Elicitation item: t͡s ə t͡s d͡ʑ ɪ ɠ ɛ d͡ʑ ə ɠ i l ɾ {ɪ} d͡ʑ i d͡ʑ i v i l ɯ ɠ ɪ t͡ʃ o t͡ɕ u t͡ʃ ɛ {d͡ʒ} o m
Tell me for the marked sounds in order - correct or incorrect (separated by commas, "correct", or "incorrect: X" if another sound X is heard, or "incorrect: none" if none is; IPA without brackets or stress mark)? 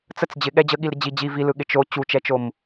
correct, incorrect: t͡ʃ